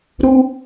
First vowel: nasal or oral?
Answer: oral